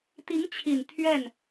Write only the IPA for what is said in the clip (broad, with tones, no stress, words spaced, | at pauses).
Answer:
t̪i˧˥ŋt͡ɕʰi˨˩n t̪ʰɥɛ˥˩n